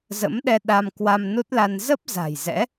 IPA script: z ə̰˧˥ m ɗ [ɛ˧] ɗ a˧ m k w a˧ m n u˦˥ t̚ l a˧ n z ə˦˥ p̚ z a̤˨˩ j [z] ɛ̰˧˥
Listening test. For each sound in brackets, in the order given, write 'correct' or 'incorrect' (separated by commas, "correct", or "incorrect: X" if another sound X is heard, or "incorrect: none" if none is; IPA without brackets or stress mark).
correct, correct